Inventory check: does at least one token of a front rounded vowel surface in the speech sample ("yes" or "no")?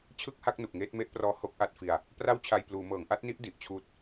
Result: no